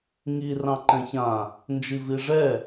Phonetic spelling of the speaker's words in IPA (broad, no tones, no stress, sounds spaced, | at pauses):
ŋ i r ɑ̃ ǃ ɛ̃ ç ã | n d͡ʒ i v i ʐ ɛ